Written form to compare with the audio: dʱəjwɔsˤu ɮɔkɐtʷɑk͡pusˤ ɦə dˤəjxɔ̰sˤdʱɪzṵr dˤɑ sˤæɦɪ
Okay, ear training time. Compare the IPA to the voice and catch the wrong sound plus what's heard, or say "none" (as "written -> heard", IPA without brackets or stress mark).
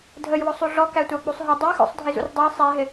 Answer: ɐ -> æ